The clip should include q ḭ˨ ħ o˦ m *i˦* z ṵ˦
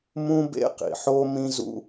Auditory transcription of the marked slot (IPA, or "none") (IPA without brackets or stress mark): ĩ˦